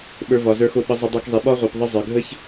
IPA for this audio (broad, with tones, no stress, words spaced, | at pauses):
ɓə˞˧ vɒ˨zə˞˧xo˧ ɓə˧zˤə˧dˤə˞˧kzˤi˨ ɓɒ˦ʁʷe˨p ðˤə˧ zˤə˞˨ɡʱə˦ç